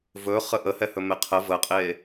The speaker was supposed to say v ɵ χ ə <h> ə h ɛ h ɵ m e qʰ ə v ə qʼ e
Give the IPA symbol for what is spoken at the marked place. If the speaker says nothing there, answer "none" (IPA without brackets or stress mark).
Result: ʔ